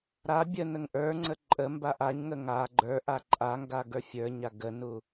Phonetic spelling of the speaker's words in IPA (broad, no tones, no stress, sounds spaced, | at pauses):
ɾ a bʲ ə n ə ŋ ʔ ə˞ ŋ͡ǀ ə ǃʼ ə m b a ʔ a ɲ ŋ ə ŋ a ɡ͡ǃ ə˞ ʔ a ǃʼ a ŋ ɡ a ɡ ə˞ fʲ ə˞ ɲ a ɡ ə n u